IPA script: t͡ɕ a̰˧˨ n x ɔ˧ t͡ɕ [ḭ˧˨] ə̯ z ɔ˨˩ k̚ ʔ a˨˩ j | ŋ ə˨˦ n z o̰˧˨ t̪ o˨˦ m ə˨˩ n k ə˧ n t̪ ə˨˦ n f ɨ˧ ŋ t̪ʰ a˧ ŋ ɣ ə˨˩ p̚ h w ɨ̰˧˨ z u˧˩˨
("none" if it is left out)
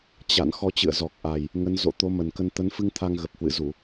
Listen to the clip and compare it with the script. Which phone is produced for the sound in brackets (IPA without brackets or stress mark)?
ɨ̰˧˨